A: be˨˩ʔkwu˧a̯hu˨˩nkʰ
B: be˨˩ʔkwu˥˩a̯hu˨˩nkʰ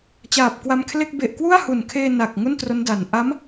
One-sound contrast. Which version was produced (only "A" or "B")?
B